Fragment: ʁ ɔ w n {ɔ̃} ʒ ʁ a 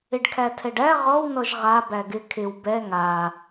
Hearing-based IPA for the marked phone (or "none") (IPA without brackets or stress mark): ɔ